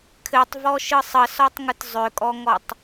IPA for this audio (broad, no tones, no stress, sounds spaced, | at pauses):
kʰ ɘ tˤ v ɔ ʃ ɯ sˤ ə s ɔ tˤ ŋ ɯ t zˤ ʏ kʼ ɔ ŋ ɔ tˤ